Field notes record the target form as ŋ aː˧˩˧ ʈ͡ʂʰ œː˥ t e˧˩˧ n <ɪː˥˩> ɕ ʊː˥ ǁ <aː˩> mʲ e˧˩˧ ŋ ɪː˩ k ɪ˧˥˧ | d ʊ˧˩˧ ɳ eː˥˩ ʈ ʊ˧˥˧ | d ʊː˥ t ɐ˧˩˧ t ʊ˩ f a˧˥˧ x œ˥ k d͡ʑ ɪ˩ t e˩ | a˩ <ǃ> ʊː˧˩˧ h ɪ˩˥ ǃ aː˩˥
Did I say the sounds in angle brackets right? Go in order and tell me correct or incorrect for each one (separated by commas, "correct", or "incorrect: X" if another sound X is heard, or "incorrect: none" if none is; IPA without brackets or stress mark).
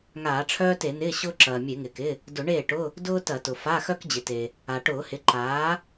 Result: incorrect: ɪː˧˥˧, incorrect: ɐː˩, incorrect: ʈ